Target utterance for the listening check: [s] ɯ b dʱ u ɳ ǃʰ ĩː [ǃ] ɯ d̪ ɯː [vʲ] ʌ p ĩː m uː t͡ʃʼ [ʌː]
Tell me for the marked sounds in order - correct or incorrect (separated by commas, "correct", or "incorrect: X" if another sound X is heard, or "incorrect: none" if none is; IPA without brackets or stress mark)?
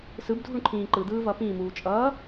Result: correct, correct, incorrect: v, correct